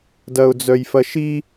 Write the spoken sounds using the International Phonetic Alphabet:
dɐʊ̯d͡zœjfɐʃi

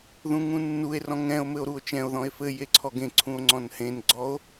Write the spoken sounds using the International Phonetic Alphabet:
ðũŋũnːue̯rɔ̃ ŋɛ̃o̯ mɘo̯ɾuo̯t͡ʃɛ̃o̯ðɔ̃e̯ fɘ jeǀʰɔɡẽ ǀʰũo̯ŋ͡ǀɔ̃nhẽnɡ͡ǀɔo̯

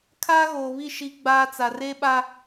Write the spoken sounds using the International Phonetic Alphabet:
kʰaː˦ɣoː˨βi˦˨ ʃi˦ ɡ͡baː˦t͡sa˨ re˦ɓa˦

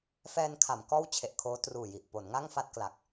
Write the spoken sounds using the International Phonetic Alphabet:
fɛː˧nkʰa˩˦m kɔː˥˩wt͡ɕʰe˨˩ʔkʰoː˦˥ truː˨˩ji˨˩ʔpo˩˦n ŋa˥˩ŋfa˥˩t̚kla˨˩k̚

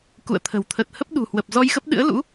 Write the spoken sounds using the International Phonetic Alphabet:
kṵ˧˨ə̯t̪ʰə̤˨˩w t̪ʰə˨˩t̚hə˦˥p̚ɗṳ˨˩hwə˨˩p̚ zɔ˧jxə˦˥p̚ɗɨ̰˧˥ə̯ lṵ˧˥

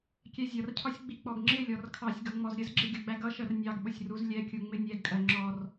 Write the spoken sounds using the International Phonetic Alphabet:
kʲɛzʲʌrcʰɒsʲ ɡ͡bik͡pɔɡŋ͡ǁɪlʲɔr kʰɑsʲɡʌ ŋ͡mɔzɾʲəzɡ͡ǁɪ ɡʲʌɡ͡bæɡʌʃɜr nʲɑɡɓʊsʲ ruzlʲɛkʲu ŋ͡mɪnʲɛɡkʼɜ ŋ͡ǁɔr

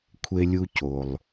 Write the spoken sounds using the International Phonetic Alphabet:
kʷʰe˧lʲu˧co˩lˠ

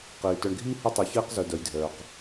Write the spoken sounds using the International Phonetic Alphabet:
qiː˨ tœ˨ɳɡʱiː˦ hə˦tˤi˨çiː˦q zœ˨dœ˨jdʱœː˨q

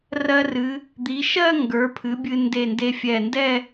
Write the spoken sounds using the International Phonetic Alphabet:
rɜ˧rɨ˩˧ | d̪i˩˧ʃɜ˥˧ ŋɡə˞˩˧pʰɨ˩˧ bʲɨ˧ nde˧˩nde˧ fʲɛ˧˩ndɛ˥˧

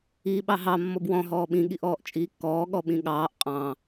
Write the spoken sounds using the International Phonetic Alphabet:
iːɓɑɦɑ mːɔbwɔ̃ ɦɔːɓĩ ɠiʔɔːʔt͡ʃʼiːkːɔː ɠɔɓĩɠɑːʔ qʼɑ̃

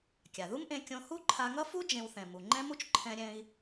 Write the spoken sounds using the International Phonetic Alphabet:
kʲa˩ðu˥mʔẽ˧ kʲõ˧ hu˥ǃʰa˧ŋʌ˥fu˥ d͡ʒẽ˧wθɛ̃˩ mu˩ŋ͡ǃɛ̃˥mu˥t͡ʃ ǃʰɛ̃˧ɾʲɛ̃˧i̯

